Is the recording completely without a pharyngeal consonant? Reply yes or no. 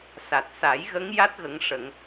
yes